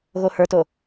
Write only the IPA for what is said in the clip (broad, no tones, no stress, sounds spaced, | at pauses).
ɣ o h ə˞ t o